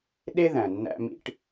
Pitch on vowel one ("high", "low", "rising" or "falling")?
high